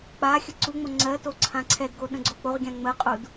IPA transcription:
k͡pa xʲəǀuŋ͡mo ŋ͡ǀɜto ǀʰãǀʰɛdɡo ɗə̃ɡ͡ǀok͡poʁɡʲã ŋ͡məqʼud

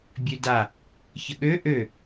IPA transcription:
bʲøda | çəɠø ʔø

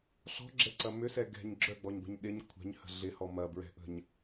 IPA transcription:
ɬɔ̤ɡ͡ǁɛǀɐ mʏsɛ ɡɛ̤ɲ ɡ͡ǁœɡ͡bɔɲbə̤ɲ ɗɪɲ kʷʰɛ̤ɲhə̤ ɮɪhɔ mɐbɹɛ̤ʔə̤ɲ

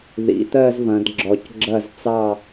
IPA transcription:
ðḭ˩˧ t̪ɜ˥˧zvɐ̃˩˧dɡ͡ǁɔ˩˧c ɡ͡ǁɐ˧˩zt͡sɑ˧˩

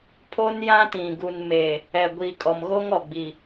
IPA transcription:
pʰo˦njã˦tĩ˨ ɡu˨nmeː˨ | ɛ˨ɡʷiː˨kʼɔ˨m ɣo˦ŋɔ˨ɡ͡bi˨

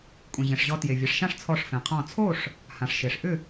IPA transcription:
kʷʼẽ˩ʑẽ˩ʂ ʑɔ˨˦tje˩vʲe˩˧˩ʂʃã˥˨ʂ t͡sʰɔ˧˩ʂfẽ˩qʰɔ̃˧˩ t͡sʰo˥˨ʂ | hã˩ʂʃe˩ʂʔʏ˥˨

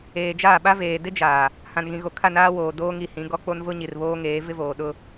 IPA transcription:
eː˨d͡ʒaː˦˨ɓa˦ veː˨dɪ˦d͡ʒaː˨ | hã˨nɣĩ˨ɣo˨kʰa˦˨ naː˦woː˨ doː˦ŋi˨hĩ˨˦ ɡɔ˦k͡po˦n vʊ˦ ɲi˨rβoː˦ŋeː˨˦ vɪ˦voː˨ɗʊ˦

